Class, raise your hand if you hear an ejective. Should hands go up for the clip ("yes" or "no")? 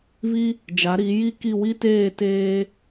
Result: no